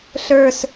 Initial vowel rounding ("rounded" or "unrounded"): unrounded